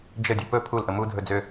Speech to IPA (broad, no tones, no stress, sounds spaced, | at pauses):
d͡ʒ ə dʲ ə p ɵ pʰ u l ʔ ə m u dʱ ɵ d͡z ø